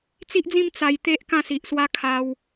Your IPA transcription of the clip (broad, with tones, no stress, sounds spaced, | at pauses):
t͡s i˦ ʔ d͡z ĩ˥˧ m t͡s a˧ j t̪ e˦ ʔ k ã˥˧ s i˨ ʔ s w a˦ kʰ a˧ w